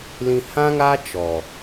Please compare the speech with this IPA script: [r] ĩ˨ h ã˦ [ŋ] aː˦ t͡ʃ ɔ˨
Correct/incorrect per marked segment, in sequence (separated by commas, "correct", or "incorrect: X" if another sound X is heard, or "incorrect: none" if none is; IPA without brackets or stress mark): incorrect: l, correct